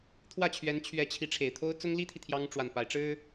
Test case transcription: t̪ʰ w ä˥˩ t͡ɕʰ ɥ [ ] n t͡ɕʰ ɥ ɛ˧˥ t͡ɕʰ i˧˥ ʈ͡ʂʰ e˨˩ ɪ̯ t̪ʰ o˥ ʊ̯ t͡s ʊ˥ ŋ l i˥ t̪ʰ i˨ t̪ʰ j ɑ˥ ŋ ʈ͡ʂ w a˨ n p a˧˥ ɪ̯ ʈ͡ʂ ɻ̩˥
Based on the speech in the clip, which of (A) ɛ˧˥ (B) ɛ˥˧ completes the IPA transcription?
A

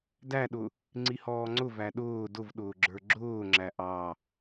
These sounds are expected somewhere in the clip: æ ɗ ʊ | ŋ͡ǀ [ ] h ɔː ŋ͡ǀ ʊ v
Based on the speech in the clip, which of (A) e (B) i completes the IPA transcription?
B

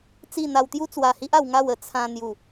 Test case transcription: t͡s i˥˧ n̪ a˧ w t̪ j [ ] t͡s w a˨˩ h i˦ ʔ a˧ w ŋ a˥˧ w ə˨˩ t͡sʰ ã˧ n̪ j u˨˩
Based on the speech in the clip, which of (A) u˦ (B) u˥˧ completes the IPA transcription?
A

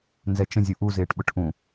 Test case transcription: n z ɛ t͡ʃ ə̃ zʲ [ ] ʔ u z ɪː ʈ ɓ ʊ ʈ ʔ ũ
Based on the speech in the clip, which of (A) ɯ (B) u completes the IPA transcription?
B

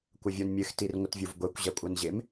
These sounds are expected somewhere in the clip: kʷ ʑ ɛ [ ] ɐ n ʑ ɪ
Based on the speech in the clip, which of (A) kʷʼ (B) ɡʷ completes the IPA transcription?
A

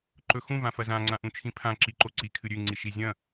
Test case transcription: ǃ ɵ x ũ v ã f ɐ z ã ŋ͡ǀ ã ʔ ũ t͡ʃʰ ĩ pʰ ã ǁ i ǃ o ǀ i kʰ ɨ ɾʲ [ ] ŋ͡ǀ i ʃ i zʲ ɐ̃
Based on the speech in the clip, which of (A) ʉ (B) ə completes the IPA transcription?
A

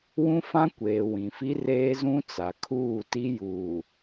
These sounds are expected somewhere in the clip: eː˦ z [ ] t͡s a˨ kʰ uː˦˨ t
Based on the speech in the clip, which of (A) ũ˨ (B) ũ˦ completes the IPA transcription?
B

